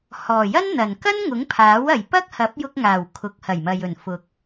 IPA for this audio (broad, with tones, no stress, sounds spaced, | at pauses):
h ɔː˨˩ j ɐ˥ n n̪ ɐ˨˩ n k ɐ˥ n ŋ ʊ˨˥ ŋ pʰ aː˨˥ w ɐ˨ j p ɐ˥ k̚ h ɐ˨˥ p̚ j ʊ˧ k̚ ŋ aː˨˩ w kʰ ʊ˨˥ k̚ h ɐ˨˩ j m ɐ˨ j ɵ˨˩ n f ʊ˨ k̚